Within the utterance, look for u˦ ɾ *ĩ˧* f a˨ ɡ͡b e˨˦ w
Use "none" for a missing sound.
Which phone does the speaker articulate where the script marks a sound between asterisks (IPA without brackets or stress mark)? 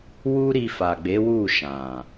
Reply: i˧